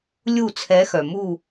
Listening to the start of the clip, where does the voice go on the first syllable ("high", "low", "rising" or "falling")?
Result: falling